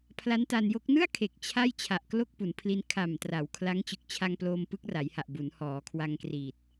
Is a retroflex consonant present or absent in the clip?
absent